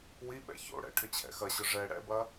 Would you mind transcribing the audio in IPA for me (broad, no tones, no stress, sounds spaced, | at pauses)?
w i ɓ ɛ̰ ç o̰ ɽ ɛ̰ ʈʰ ʏ t͡ɕʰ ɛ̰ x ɐ ɕ ʊ ʐ ɛ ɽ ɛ̰ b ɐ